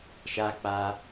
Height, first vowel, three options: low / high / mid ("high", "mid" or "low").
low